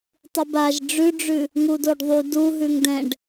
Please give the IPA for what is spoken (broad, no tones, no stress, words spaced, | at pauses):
tˤubaʒ ɖ͡ʐʉɖ͡ʐʉ | ŋudoɖðˤu du ɦʉŋdɛ̃ɖ